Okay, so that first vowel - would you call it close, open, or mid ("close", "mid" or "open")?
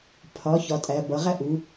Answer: open